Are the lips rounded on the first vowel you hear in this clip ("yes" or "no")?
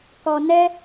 yes